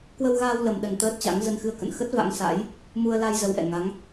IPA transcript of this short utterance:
k w ə˧ w ɣ aː˧ w l ə˨˩ m ɗ ə˨˩ n t̪ əː˦˥ t̚ t͡ɕ a̰˧˥ ŋ z ə˧ n x ɨ˧ ə̯ k ə̰˧˨ n x ə˦˥ t̚ v a̰˧˥ ŋ s a̰˧˥ j | m u˧ ə̯ l a˧ j z ə˨˦ w ʔ ɛ̰˧˨ ŋ a˨˦ ŋ

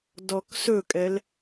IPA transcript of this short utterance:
d ɔ k s ɵ kʼ ɛ l

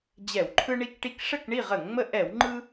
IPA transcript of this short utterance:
d͡ʑ ɛ˧˩˧ w ǃʰ ɯ˦ ɳ i˦ k ʈ i˦ k ʂ ə˥˨ k ɳ i˥˨ ʁ ə˧˩˧ ŋ ŋ͡m ə˦ ʔ ɛ˧˩˧ w ŋ͡ǃ ɯ˦

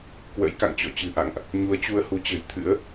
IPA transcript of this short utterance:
k w ə̰˧˥ j k a̰˧˨ ŋ t͡ɕ ɔ̰˧˨ t͡ɕ ɨ̤˨˩ ʔ a̰˧˨ ŋ ʔ | ɲ u˨˦ ə̯ t͡ɕ u˧ ə̯ h u˨˦ t͡ɕ ə̤˨˩ j t̪ʰ ɨ̰˧˥ ə̯

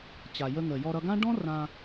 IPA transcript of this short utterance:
t͡ɕ a˩ j ə˧ ŋ ə˩ j ɔ˧ ɾ ʌ˧ ɡ ã˥ ɖ ɔ̃˥ r ã˧

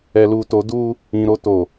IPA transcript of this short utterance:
ɛ˨ l uː˨ t o˨˦ d uː˦ | ĩ˨ ɾ o˨ t oː˨

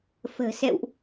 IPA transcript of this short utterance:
f ə̤ː˨˩ s ɛ̰˧˨ w ʔ

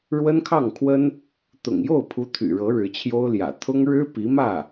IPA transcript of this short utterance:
ɻ w ə˥ n kʰ ɑ˥˩ ŋ kʰ w ə˥ n | t̪ ʊ̰˨˩ ŋ j o˥˩ ʊ̯ pʰ u˧˥ t̪ʰ y̰˨˩ ɻ ɤ˧˥ ɻ ɻ̩˧˥ t͡ɕʰ j o˥ ʊ̯ l j ä̰˨˩ t̪ʰ ʊ˥ ŋ ɻ ɻ̩˥ p i˧˥ m ä˥˩

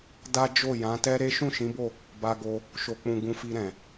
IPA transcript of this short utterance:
d a˦ d͡ʒ o˦˨ j ã˨˦ t ɛ˦ ɾ e˦ ʃ ũ˦˨ ʃ ĩ˨˦ b o˦˨ | b a˧ ɡ o˧ | ʃ o˨ k͡p ũ˨ ɡ ũ˧ f i˧ ɾ ɛ̃˨

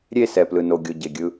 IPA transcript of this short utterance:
ɾʲ e˦˨ s ɛ˨ p l ɯ˨ n o˨ ɡʲ o˨ ɟ e˨ ɡʲ ɯ˦

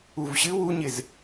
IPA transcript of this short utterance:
u v ɕ ɨ w u ɲ ɪ z

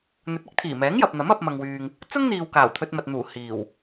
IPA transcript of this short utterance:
n̪ ɵ˨˥ t̚ ɪ˨˥ k̚ t̪ʰ iː˨˩ m ɛː˨˥ ŋ j ɐ˨ p̚ n̪ ɐ˨˥ m ɐ˧ p̚ m ɐ˨ ŋ w yː˨ ŋ | t͡s ʊ˥ ŋ n̪ iː˨ w k aː˨˩ w t̪ʰ ɵ˧ t̚ m ɐ˨ t̚ n̪ uː˨˩ h iː˨˩ w

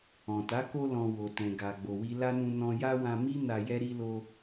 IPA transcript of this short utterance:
ɔ̃˨ t a˨˦ k o˧ l ɔ̃˨ w o˨ t ɛ̃˨ ɡ a˨ ɡ͡b o˨ w i˧ l a˦ n ũ˧ n ɔ̃˧ j a˦ w ã˧ m i˦ n a˧ j ɛ˦ ɾ i˦ l o˦

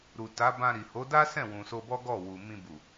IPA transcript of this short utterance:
ɾ u˨ t a˨˦ b ã˧ ɾ i˨ h o˨˦ d a˦ s ɛ̃˦˨ w ũ˨ s o˧ b ɔ˦ ɡ ɔ˦˨ w u˨ m ĩ˧ b u˨

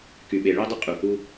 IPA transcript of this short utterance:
k y˨ ɓ e˨ ɭ i˧ dˤ ə˧ qʼ u˨ h u˧

